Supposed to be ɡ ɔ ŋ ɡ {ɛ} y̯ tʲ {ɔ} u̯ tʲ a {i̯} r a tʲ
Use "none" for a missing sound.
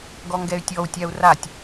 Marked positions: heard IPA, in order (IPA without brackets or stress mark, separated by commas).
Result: ɛ, ɔ, u̯